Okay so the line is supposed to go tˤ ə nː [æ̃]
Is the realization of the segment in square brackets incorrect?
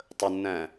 no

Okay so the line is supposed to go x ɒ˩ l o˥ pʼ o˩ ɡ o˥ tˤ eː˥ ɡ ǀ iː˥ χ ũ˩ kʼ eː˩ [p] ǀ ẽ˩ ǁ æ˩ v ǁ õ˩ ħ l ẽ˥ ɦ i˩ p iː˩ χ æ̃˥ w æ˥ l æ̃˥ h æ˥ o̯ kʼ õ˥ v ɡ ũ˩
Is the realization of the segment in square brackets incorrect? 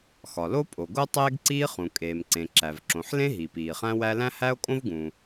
yes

